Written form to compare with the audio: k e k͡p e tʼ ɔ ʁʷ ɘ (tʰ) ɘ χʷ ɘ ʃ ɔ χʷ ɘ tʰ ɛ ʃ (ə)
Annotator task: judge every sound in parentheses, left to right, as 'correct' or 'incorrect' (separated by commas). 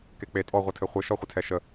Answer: correct, correct